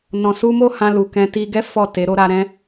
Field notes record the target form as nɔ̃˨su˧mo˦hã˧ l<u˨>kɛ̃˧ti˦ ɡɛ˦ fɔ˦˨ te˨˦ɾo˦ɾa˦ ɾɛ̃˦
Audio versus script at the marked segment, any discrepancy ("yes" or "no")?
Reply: no